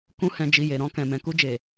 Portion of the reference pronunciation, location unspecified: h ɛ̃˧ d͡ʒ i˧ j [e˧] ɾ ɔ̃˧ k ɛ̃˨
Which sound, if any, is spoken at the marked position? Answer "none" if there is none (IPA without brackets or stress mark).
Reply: e˨